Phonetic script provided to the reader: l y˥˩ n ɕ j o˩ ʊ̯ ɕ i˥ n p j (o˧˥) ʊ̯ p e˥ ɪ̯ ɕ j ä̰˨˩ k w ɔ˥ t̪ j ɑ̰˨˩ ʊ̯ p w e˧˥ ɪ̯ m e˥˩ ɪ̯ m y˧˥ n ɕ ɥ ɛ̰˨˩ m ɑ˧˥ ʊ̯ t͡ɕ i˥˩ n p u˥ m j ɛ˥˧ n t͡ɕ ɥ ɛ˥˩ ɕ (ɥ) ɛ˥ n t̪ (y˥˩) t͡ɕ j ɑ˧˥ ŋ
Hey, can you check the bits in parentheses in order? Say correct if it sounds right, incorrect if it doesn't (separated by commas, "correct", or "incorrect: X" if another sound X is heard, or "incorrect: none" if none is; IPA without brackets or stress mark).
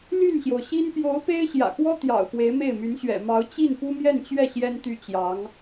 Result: correct, incorrect: j, correct